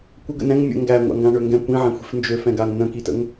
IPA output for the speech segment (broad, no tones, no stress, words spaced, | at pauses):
kʷə ɡə̰nɛ̃ŋ mʲə̰ ŋɡæŋʷa̰ ŋɡãɳøŋɡɛ̃ kʷĩʕɛ̃xʷi̤f nd͡ʒøfɛ̃ɡaŋ nə̃kitə̰ŋ